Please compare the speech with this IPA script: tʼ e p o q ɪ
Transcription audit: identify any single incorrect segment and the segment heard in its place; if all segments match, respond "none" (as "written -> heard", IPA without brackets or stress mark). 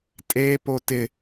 q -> t